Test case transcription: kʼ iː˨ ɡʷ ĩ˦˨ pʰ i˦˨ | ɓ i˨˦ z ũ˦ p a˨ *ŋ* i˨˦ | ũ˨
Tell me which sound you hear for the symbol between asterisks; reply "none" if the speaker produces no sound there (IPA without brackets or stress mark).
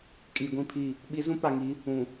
ŋ